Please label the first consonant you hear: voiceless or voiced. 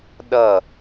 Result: voiced